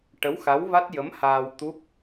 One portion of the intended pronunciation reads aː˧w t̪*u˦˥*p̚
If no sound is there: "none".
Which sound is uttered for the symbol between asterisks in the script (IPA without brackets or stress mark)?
u˦˥